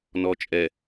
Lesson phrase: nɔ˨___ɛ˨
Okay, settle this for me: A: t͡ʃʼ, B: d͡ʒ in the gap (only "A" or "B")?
A